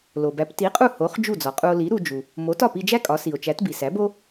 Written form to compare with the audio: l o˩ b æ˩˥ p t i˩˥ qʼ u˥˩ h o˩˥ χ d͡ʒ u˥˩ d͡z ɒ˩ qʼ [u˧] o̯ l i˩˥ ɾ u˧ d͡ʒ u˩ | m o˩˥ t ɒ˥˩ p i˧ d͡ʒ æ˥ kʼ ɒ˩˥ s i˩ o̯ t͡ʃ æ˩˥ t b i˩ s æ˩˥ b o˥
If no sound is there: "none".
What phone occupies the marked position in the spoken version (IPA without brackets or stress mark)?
u˧